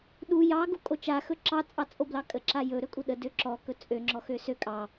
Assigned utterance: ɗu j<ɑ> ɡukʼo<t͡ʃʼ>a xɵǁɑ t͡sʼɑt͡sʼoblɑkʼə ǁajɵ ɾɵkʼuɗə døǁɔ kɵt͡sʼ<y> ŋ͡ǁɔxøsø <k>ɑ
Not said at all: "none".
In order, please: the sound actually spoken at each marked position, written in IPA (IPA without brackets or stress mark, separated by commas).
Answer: ɑ, t͡ʃ, ø, kʼ